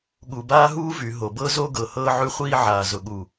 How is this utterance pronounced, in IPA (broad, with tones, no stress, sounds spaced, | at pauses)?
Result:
ɠ u˨ b aː˦ ɦ uː˦ v y˨ ɦ o˨ b ɤ˦ z o˦ ɡ ɤ˨ h ɤː˦ ʕ y˦ χʷ iː˦ ʕ aː˨ z ʊ˨ ɠ u˨